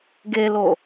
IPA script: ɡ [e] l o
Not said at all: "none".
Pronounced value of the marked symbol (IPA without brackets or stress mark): e